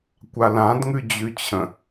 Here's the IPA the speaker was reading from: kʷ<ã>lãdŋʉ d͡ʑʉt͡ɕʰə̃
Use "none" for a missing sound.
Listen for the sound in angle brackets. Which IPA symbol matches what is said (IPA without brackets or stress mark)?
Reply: a